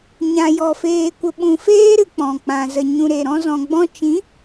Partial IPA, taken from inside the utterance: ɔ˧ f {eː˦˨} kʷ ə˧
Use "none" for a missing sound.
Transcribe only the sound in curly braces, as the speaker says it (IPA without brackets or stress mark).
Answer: eː˧